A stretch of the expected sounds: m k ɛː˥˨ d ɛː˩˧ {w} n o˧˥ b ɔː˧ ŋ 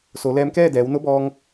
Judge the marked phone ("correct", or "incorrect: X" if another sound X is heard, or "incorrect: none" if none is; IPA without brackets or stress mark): correct